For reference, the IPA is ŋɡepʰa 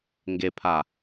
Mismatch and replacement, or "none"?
none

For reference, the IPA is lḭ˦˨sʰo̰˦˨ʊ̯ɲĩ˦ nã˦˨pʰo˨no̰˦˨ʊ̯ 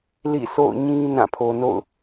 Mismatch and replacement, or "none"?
none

